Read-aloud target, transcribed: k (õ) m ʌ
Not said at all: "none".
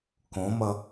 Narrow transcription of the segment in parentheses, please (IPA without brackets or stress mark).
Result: õ